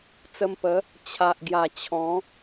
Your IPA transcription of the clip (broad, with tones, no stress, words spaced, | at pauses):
t͡sə˧mpə˨˦ | t͡ɕʰa˨ʔɡja˨˩ t͡ɕʰɔ̃˨˦